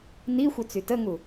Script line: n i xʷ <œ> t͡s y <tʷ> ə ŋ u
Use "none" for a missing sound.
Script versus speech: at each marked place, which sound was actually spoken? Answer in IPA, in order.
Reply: œ, t

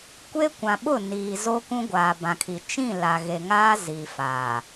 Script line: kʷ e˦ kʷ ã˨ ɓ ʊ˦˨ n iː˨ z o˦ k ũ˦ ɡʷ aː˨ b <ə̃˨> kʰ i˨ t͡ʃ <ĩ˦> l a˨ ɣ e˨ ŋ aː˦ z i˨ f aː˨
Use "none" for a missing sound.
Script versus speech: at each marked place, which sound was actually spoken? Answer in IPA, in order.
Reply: ã˨, ĩ˦˨

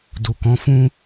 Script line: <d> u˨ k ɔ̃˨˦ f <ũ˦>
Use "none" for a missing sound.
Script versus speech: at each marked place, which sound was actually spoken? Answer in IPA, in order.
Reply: d, ũ˦

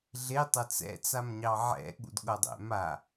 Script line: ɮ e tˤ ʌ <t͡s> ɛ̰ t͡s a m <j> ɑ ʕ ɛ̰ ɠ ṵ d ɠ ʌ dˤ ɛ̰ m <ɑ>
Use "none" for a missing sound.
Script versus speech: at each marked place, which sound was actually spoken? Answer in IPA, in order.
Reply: t͡s, ɲ, a

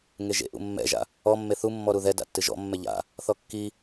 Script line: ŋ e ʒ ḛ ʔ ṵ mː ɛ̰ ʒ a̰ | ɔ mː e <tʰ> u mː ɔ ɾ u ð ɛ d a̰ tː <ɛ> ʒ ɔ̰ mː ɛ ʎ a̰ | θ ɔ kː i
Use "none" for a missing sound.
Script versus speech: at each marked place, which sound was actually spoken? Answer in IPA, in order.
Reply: θ, ɨ

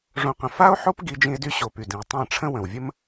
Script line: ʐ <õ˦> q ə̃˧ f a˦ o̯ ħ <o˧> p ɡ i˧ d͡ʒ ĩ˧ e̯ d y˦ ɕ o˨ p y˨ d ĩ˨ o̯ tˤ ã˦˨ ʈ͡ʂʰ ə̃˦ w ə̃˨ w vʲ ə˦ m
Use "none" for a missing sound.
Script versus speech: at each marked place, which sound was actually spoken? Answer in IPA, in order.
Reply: õ˦, o˦

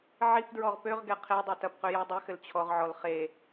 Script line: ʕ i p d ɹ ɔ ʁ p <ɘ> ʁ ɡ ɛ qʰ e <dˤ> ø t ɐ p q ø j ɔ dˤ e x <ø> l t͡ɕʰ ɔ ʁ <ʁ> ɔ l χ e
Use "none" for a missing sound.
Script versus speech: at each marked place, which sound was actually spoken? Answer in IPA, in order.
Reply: ø, dˤ, ɘ, ʕ

